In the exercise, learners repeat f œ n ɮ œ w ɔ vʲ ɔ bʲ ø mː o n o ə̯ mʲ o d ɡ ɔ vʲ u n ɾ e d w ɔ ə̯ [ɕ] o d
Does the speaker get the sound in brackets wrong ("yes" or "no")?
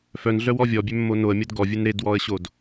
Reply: no